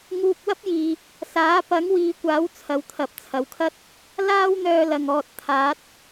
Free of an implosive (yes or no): yes